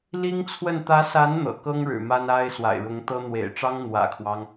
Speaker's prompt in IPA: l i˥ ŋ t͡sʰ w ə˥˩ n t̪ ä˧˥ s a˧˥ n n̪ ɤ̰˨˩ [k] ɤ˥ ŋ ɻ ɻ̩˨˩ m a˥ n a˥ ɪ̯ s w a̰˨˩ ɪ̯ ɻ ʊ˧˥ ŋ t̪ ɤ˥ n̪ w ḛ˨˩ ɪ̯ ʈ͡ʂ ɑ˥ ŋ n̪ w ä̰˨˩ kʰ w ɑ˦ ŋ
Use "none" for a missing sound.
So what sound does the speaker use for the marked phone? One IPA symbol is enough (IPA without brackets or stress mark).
k